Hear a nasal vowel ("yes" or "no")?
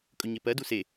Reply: no